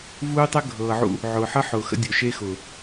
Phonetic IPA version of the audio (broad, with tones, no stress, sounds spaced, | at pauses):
v uː˦ tˤ əː˦ ɡʱ ɤː˨ ʕ ṵ˦ | ʕ ʊː˨ ħ ɤ˦ ħ ʊː˨ x ə̰˦ dʲ ʊ˨ ʃ e˦ x ʊː˨